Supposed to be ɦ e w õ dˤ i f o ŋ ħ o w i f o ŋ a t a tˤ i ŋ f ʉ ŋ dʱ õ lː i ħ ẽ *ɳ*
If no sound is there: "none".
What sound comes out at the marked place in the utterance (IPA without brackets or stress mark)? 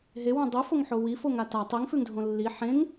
ŋ